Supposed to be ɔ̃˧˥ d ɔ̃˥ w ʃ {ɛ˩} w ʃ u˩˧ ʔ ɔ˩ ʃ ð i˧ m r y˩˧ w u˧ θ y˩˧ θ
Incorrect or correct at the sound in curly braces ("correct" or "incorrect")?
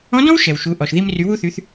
correct